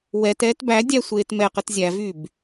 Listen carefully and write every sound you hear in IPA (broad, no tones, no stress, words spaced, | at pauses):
wɛtɛːt bæ dʲæsʷeːtmɛqət zʲævyb